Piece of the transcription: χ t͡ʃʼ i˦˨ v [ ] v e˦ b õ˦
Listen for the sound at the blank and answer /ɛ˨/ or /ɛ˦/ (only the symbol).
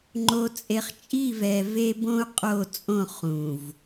ɛ˨